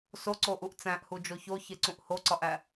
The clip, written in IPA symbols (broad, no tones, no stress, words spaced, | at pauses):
soǀoʔuʔ t͡sæ̃ʔhud͡ʒo çoçeǀũʔ hoǀɒʔæ